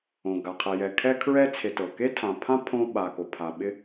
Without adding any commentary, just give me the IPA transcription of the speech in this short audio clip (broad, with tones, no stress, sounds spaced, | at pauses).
õ˩ ɡ a˩ qʰ ɛ˨ j ɛ˨ kʰ ɛ˥ kʰ ɹ ɛ˥ t͡sʰ e˨ t ɤ˩ k e˥ tʰ ã˨ pʰ ã˥ pʰ õ˥ ɓ a˨ k o˩ pʰ a˨ ɓ ɪ˥